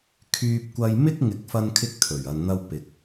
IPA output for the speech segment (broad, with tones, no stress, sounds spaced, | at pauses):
kʰ yː˧ p̚ kʷ ɐ˧ j m ɪ˥ k̚ ŋ ɪ˨˥ k̚ f ɐ˧ n kʰ ɪ˧ k̚ t̪ʰ ɵ˨˩ ɥ ɐ˨ n n̪ ɐ˧ w p ɪ˨ k̚